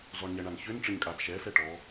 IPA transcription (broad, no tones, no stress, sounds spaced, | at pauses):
z ɔ ɳ ɲ ɛ ɳ a n ç ø n ʈ͡ʂ ə ɲ kʼ a b ʃ ɛ f ɛ ʈ ɔ